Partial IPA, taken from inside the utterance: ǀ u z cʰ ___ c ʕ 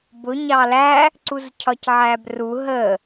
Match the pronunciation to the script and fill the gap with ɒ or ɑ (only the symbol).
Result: ɒ